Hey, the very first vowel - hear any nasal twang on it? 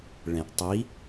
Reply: yes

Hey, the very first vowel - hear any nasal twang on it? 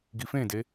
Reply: no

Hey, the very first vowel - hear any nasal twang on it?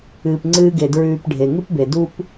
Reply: no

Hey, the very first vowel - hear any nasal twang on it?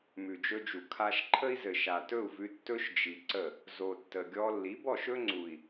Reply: no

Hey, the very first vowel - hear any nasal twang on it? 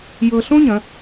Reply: no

